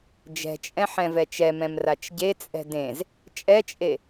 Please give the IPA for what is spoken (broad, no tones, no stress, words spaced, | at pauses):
d͡ʒɛ̤t͡ʃʼɛ̃ ħɛ̃vɛt͡ʃɛmɛ̃m rat͡ʃɟet͡sʼɛ̤ dẽz | t͡ʃʼɛt͡ʃʼe